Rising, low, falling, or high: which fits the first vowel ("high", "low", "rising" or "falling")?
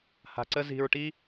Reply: low